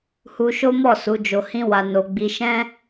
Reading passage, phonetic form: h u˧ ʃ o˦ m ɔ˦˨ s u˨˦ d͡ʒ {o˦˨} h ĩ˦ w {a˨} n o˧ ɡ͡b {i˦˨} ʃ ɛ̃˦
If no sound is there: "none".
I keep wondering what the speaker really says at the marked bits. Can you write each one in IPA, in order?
o˧, a˧, i˧

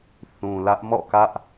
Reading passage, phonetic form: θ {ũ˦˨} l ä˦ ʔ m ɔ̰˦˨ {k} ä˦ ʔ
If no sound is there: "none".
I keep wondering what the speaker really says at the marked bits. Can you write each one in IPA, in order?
ũ˨, k

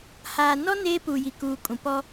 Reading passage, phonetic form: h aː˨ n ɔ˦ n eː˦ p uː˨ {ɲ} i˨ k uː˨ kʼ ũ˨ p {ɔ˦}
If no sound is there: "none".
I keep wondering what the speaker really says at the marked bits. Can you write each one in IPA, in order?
j, ɔ˦

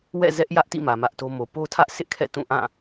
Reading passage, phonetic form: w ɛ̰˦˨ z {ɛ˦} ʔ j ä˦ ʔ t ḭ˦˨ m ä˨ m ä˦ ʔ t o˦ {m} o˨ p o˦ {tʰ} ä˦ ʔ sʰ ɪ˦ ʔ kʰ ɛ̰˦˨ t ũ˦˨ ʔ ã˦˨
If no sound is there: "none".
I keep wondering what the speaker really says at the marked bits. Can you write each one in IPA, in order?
ɛ˦, m, tʰ

